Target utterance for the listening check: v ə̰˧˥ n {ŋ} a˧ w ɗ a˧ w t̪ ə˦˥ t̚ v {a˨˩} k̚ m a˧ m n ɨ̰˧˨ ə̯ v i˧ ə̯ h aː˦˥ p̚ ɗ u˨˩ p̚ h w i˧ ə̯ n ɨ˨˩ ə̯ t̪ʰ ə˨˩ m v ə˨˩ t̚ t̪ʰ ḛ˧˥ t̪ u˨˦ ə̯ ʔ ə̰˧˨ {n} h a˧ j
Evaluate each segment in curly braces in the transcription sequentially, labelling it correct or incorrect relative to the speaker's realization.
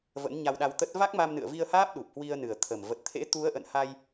incorrect, incorrect, correct

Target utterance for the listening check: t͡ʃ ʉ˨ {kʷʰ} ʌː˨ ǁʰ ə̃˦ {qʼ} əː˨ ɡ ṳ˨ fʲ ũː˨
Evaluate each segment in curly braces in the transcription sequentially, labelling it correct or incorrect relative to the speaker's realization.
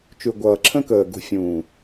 incorrect, incorrect

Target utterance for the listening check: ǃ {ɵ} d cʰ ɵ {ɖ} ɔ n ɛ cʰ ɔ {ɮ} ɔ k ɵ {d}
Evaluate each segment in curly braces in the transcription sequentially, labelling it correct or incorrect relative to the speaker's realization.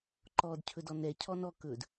incorrect, incorrect, incorrect, correct

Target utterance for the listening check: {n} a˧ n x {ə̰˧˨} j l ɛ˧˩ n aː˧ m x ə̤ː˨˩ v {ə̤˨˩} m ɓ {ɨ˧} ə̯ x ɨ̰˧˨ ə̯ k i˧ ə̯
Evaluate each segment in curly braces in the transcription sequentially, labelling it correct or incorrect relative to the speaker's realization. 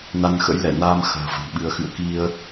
correct, incorrect, correct, correct

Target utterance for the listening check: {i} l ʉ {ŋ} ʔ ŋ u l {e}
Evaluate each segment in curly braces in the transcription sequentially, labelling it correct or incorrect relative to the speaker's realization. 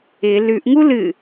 incorrect, incorrect, incorrect

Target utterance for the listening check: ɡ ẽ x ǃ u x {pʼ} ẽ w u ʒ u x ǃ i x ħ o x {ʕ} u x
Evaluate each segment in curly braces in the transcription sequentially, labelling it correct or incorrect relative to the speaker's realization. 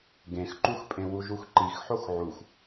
correct, correct

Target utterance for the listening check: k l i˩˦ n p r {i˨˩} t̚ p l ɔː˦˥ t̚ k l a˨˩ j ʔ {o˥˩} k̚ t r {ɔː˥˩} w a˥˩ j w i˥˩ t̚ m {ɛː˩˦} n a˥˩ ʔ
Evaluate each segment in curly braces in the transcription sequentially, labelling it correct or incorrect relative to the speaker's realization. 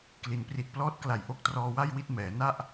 correct, incorrect, incorrect, correct

